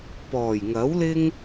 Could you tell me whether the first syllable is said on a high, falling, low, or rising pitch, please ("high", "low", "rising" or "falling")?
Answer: low